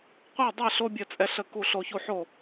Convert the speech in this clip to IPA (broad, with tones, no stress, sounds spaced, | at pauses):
qʷ ɛ˥˨ dˤ ɛ˥˨ ɬ o˦ bʲ ə˥˨ t͡sʼ ɛ˦ ɬ ə˥˨ k u˥˨ ɬ o˦ ç u˥˨ ħ o˥˨